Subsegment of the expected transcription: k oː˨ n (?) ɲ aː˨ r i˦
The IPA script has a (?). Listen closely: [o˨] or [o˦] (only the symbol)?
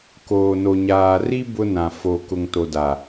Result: o˨